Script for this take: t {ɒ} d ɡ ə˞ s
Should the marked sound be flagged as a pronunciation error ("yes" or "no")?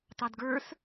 yes